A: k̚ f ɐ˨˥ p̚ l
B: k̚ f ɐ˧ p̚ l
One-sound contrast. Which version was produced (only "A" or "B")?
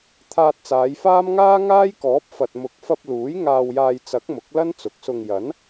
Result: B